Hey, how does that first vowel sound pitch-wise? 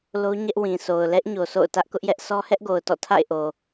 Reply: high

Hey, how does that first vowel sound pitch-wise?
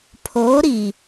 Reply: rising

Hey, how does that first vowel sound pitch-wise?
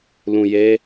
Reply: low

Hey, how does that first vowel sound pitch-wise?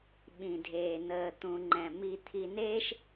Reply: low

